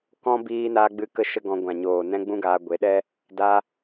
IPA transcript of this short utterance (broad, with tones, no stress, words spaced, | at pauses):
kɔ̃˦ biː˧naː˧ɡ͡bɨ˧ kə˦ʃə˦ɡɔ̃˧ ɡʷã˨ɲoː˨ nɛ̃˦ɡ͡bũ˦ɡaː˧ ɡʷe˨˦ɗɛ˦ | da˦